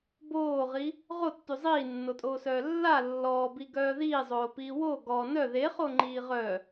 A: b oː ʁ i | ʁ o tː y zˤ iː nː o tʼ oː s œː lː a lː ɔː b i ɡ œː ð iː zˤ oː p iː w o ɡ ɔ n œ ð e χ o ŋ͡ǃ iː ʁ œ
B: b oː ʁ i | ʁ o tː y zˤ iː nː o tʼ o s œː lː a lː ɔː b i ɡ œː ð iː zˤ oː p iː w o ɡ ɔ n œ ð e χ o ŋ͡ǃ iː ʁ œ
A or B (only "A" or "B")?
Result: A